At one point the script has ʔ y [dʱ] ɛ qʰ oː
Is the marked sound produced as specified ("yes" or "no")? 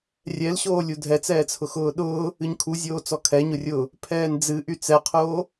no